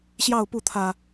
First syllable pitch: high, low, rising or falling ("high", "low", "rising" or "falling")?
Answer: falling